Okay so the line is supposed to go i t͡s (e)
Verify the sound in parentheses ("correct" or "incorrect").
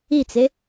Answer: correct